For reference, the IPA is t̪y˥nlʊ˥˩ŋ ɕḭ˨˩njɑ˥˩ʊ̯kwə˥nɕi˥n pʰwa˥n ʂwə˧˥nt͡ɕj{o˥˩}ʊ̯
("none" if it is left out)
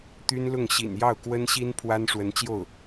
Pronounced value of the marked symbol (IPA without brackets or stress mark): o˥˩